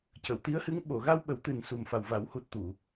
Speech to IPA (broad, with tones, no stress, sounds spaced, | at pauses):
c ə˨˩˨ w t̪ i˧˥ ə̯ h ɨ˧˥ ŋ ɓ o˨˩˨ ɣ a˧ w ɓ ə˨˩˦ w t̪ ɨ˨˩ n s u˨˩ m f a˨˩ w v a˨˩˦ w h u˨˩ t̚ t̪ u˨˩˨